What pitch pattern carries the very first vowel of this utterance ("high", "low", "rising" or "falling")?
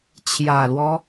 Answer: low